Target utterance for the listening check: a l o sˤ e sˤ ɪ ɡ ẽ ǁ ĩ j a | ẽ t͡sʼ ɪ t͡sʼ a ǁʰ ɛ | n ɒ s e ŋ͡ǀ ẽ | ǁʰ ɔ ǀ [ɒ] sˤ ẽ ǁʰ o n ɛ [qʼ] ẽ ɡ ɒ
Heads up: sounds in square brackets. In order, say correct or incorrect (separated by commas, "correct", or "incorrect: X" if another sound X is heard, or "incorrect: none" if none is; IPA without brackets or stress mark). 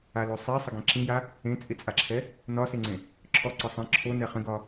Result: correct, incorrect: χ